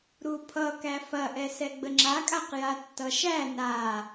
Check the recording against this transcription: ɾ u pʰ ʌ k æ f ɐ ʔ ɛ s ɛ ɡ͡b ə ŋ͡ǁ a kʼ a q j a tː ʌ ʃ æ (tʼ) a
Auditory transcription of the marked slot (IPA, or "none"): n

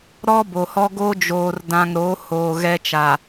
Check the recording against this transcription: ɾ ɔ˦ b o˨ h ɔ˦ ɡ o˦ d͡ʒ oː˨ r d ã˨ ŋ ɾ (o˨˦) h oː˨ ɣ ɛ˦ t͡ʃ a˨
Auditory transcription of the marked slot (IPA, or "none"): o˨˦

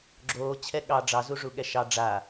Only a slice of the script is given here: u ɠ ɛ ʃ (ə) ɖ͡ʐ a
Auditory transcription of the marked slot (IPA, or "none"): ɑ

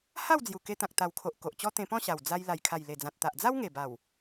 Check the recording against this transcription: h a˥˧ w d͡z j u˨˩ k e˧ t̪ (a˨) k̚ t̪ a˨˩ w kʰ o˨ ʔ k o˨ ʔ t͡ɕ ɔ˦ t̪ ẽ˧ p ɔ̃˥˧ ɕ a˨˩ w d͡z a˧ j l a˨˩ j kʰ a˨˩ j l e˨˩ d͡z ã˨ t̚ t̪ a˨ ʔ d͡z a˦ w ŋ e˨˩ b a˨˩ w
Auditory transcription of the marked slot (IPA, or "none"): ã˨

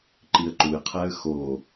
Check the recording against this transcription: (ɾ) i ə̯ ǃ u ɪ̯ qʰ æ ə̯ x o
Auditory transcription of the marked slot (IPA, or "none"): ǃ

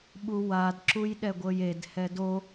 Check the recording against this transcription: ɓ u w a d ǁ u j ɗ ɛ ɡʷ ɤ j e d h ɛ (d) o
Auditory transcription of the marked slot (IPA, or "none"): d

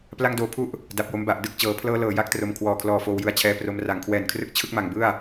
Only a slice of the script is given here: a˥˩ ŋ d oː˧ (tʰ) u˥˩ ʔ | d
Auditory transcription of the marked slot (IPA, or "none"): pʰ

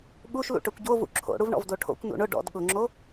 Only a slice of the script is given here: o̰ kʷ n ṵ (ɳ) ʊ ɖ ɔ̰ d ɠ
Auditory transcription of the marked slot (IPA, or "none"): ɳ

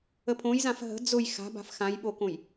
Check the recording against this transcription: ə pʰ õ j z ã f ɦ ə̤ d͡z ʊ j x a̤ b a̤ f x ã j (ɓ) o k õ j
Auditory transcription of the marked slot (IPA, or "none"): ɓ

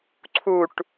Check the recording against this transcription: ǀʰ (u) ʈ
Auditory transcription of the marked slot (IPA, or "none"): u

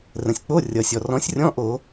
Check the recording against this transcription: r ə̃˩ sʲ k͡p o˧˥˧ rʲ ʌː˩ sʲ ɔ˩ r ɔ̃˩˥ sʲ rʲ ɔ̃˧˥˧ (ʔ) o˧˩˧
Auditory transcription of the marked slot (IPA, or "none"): ʔ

